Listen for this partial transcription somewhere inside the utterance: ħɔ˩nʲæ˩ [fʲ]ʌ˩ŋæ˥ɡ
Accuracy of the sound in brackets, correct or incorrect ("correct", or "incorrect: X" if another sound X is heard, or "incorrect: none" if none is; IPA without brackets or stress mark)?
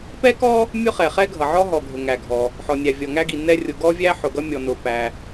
incorrect: vʲ